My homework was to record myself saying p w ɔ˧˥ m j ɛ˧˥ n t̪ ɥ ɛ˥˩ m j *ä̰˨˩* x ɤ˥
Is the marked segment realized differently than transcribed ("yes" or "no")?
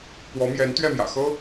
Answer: no